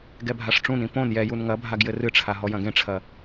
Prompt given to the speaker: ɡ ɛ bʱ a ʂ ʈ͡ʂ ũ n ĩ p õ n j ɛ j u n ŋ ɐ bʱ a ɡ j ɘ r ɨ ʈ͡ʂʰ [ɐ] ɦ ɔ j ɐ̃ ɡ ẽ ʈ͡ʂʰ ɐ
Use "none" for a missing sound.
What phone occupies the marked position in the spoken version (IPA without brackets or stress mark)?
a